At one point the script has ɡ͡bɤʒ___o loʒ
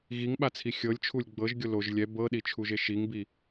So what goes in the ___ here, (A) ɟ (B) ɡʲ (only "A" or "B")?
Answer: B